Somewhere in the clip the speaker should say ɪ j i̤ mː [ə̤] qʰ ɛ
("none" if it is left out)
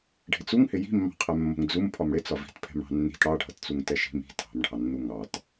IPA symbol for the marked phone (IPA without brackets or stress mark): ɑ̤